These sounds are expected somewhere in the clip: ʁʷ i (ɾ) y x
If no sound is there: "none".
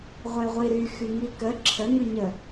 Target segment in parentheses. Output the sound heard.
ɾ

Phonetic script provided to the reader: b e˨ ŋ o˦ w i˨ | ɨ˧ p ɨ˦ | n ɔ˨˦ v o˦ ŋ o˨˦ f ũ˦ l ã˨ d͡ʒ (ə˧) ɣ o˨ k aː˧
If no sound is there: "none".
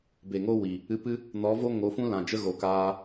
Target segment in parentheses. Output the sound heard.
ə˦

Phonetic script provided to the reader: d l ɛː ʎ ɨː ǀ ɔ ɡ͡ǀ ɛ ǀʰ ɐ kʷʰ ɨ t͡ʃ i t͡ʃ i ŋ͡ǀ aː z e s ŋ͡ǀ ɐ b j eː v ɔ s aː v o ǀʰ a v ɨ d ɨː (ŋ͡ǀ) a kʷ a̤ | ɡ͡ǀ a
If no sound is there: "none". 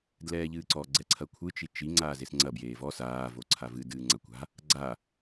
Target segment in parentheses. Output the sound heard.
ŋ͡ǀ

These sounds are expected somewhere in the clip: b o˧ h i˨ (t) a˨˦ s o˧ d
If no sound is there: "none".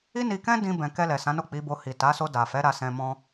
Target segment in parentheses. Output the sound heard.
t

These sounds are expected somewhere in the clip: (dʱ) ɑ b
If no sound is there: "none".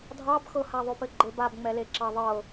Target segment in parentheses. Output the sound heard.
dʱ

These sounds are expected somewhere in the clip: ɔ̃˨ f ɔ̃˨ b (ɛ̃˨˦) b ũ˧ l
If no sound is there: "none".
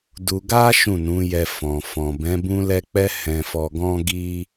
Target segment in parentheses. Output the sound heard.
ɛ̃˨˦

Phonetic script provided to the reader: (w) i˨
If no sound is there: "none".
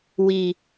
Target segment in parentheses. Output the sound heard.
w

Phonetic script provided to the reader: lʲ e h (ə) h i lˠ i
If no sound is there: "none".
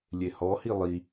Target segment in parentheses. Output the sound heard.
ɔ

